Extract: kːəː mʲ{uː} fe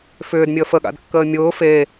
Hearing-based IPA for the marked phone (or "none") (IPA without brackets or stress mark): ʊː